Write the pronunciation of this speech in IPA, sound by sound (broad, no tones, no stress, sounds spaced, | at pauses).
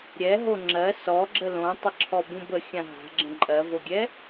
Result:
ɾʲ ɛ ɦ o ŋ͡ǁ ɜ s ɔ ɡ͡ǁ ə l õ tˤ ə ǁʰ ɔ b ũ b ə xʲ ã ɦ a̤ ɡ͡ǁ ə̃ ǃʼ ɜ v o ɡʲ ɛ